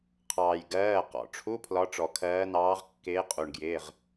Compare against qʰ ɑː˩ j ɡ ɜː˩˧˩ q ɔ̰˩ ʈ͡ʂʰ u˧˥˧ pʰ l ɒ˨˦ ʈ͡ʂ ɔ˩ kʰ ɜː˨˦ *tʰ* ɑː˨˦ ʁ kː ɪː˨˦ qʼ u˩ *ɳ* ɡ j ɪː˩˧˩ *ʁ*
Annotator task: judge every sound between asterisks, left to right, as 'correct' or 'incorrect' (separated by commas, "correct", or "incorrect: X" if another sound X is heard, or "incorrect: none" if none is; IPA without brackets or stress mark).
incorrect: n, correct, correct